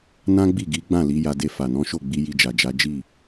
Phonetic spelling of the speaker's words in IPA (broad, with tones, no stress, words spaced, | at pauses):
nã˦ɡ͡bi˦˨ɡi˨˦ɡ͡bã˦˨ li˨˦ja˧de˧fa˨ nɔ̃˨˦ʃo˦˨ɡ͡bi˧ ji˧d͡ʒa˨d͡ʒa˨˦ d͡ʒi˦˨